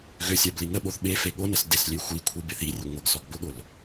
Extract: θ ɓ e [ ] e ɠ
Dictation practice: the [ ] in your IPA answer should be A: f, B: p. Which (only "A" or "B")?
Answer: A